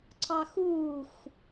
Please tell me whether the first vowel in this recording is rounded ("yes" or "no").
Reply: no